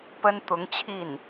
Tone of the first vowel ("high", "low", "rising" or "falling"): high